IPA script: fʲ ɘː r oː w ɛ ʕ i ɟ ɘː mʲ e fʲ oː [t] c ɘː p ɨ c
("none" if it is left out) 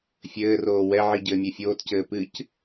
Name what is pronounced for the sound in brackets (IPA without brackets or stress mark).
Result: t